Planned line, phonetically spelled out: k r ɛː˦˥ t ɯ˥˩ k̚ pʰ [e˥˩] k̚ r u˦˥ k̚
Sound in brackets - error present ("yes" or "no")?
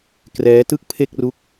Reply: no